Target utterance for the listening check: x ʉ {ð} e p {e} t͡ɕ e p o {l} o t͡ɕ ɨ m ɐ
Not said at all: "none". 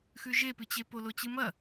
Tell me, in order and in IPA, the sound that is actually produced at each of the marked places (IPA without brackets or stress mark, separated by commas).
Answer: ʒ, ɨ, l